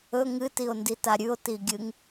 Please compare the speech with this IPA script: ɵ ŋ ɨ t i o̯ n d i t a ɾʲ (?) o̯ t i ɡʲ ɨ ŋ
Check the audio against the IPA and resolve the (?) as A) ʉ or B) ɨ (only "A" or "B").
A